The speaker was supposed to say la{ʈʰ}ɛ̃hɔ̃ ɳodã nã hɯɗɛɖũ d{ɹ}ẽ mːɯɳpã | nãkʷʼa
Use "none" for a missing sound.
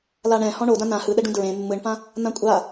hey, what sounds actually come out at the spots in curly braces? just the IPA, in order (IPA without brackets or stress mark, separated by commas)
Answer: ɳ, ɹ